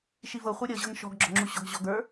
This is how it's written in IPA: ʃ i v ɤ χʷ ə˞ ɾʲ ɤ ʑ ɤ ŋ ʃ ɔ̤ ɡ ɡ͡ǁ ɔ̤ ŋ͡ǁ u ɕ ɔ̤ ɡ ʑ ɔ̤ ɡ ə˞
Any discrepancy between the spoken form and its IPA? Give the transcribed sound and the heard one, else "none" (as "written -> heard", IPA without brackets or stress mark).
none